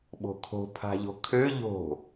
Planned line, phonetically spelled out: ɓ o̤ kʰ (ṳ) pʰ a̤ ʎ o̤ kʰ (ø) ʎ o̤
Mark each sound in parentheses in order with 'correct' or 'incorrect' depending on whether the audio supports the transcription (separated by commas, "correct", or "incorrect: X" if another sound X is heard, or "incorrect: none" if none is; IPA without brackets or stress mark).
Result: incorrect: o̤, correct